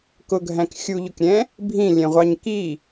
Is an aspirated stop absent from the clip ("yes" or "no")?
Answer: yes